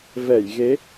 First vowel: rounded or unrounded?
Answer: unrounded